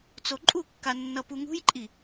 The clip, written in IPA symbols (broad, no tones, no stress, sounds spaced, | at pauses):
t͡s o ǃʼ u kː a nː ʌ p u ŋ ṳ j ǃʼ i